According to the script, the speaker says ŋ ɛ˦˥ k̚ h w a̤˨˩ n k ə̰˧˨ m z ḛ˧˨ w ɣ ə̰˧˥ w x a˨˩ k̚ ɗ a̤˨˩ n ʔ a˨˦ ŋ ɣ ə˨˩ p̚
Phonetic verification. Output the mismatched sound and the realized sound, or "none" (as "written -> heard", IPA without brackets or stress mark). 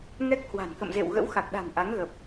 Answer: none